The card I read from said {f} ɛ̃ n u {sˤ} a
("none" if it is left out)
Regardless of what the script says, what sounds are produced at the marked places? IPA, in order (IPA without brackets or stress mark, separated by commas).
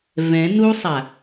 v, sˤ